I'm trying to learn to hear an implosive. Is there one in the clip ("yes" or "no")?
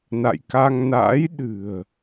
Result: yes